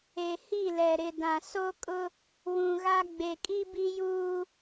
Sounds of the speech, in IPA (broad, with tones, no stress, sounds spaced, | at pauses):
e˨ h i˦˨ l ɛ˨ ɾ ɪ˨ d ã˨ s o˦ kʼ ʊ˦ | w ũ˨ ɣ a˦ ɡ͡b e˨ kʼ i˦ b i˦ j uː˦